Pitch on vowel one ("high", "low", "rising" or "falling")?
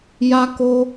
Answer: high